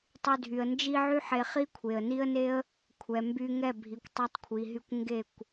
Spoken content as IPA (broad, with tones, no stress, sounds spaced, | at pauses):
tˤ y˧ dʱ y˨ ə̯ n d͡ʒ i˧ ʕ y˦ ħ e˧ χ i˦ kʷʰ e˨ ə̯ n i˦ ə̯ n e˦ ə̯ | kʷʰ ɛ˨ m b y˧ ŋ ɛ˦˨ bʱ i˨ kʷ tˤ ɛ˧ tˤ kʷʰ i˨ ɦ y˧ kʷ ŋ ɡ e˦˨ kʷ